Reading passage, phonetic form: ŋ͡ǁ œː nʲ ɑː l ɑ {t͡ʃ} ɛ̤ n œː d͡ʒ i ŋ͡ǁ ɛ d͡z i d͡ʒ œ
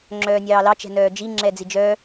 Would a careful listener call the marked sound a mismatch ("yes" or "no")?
no